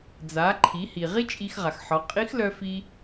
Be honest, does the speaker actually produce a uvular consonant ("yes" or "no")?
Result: yes